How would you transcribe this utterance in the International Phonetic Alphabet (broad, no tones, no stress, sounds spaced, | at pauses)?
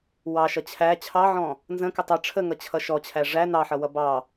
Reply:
w ɑ ʃ ʌ t͡ɕʰ æ t͡ɕʰ ɑ ʕ ɔ̃ | n z ə̃ k ə tˤ ʌ ʈ͡ʂʰ ə ŋ ʌ t͡ɕʰ ʌ ʃ ɔ t͡ɕʰ æ ʐ æ n ɑ ħ ʌ w ʌ b ɑ